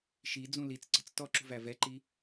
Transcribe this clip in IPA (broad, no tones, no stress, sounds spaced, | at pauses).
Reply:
ʃ i d͡z ũ l i t͡s ǀ ə̤ t͡s t ɔ ǁ ṳ v æ v ɛ ǃ i